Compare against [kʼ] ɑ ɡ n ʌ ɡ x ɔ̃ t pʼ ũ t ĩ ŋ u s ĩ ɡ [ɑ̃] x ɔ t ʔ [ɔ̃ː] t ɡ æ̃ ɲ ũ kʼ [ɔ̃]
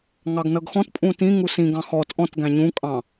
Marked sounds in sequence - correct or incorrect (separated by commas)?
incorrect, correct, incorrect, incorrect